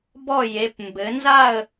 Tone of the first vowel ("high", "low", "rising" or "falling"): falling